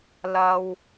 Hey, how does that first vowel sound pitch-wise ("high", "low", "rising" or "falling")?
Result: low